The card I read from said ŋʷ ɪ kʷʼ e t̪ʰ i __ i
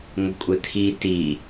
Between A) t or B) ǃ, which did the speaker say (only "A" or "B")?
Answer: A